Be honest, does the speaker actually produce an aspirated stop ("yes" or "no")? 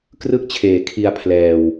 yes